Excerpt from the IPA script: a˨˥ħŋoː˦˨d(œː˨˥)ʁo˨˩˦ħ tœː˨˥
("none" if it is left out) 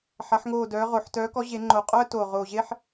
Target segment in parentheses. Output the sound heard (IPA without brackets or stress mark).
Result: œː˨˥